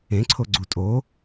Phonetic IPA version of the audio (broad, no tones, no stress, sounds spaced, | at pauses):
ẽ ǀʰ o ɡ͡ǀ u tʼ o